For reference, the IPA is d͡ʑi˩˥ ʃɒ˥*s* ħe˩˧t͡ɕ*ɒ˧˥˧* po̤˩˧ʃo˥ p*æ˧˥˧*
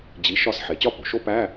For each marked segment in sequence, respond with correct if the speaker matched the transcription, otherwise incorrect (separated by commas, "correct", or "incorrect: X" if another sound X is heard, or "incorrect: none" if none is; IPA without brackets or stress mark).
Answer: correct, incorrect: ɒ˥˧, correct